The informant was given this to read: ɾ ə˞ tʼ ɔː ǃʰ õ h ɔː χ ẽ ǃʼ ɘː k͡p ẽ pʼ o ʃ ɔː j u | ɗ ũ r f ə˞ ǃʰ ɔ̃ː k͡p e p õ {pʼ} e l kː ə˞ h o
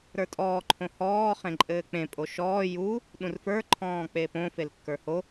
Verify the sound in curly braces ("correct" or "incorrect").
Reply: incorrect